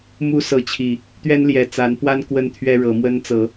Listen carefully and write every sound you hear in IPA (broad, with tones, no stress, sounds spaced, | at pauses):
m u˦ s ɤ˨˦ t͡ɕʰ i˨˩ | t̪ ɥ ɛ˦ n l j ɛ˨˩ t͡s a˨˦ n p w a˦ n k w ə˦ n t̪ʰ ɥ ɛ˦ ɻ ɤ˨˦ m w ə˦ n t͡s ɤ˨˦